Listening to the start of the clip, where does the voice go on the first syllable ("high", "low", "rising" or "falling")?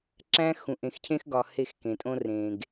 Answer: high